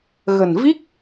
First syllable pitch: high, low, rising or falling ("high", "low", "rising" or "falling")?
low